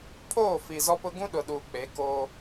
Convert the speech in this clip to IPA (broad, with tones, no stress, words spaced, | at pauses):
pʰoː˦˨fi˨zɔ˦pʊ˦ ɡũ˦ɗʊ˨ɗuː˨k͡pe˨˦ ko˦